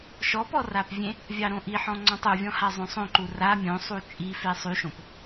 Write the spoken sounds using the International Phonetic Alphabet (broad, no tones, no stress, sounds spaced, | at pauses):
ʃ ɔ p ɔ r a p vʲ ẽ | vʲ ɑ ɾ õ ʔ i ħ ɔ̃ ŋ͡ǀ ɔ̃ tˤ u vʲ ɔ̃ h a zˤ õ sˤ õ ǃ u r a mʲ õ sˤ u t͡ʃʼ i f e sˤ y ʃ õ p